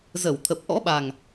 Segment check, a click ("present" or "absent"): absent